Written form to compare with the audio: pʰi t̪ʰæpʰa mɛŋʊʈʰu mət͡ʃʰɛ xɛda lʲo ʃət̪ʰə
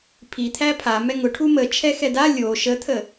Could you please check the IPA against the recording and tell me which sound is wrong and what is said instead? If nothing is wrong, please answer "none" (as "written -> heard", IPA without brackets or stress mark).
none